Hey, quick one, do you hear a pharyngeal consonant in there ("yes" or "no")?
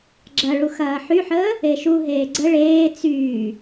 yes